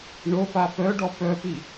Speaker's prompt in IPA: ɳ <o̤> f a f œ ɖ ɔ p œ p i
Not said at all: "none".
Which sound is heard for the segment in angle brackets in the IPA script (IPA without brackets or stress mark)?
o